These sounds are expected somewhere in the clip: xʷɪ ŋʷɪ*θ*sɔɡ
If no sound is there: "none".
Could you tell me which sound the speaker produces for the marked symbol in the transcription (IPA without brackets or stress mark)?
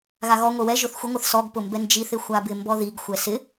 θ